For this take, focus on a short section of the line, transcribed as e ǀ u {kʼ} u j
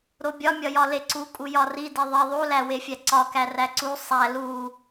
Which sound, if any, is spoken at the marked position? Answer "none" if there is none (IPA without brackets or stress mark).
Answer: kʼ